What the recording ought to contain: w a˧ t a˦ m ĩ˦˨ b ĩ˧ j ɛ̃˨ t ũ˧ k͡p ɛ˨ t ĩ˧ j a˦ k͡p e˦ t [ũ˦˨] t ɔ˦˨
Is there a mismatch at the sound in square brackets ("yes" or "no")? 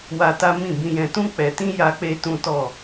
yes